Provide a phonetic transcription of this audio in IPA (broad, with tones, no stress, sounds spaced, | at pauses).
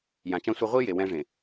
j ã˨ t͡ʃ ã˦ sʷ a˦ ʁʷ i˦ j e˨ w ɛ̃˦ ʐ ẽ˨